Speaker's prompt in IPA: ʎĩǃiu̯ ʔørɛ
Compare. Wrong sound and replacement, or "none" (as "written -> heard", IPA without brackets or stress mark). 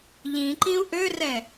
i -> ĩ